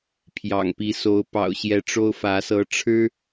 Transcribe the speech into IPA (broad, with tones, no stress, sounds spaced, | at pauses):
pʰ j ɑ̰˨˩ ŋ p i˨˦ s o˨˦ ʊ̯ p ɑ̰˨˩ ʊ̯ ɕ j ɛ˨˦ ʈ͡ʂ o˦ ʊ̯ f ä˨˦ s ɤ˨˦ ʈ͡ʂʰ ɻ̩˦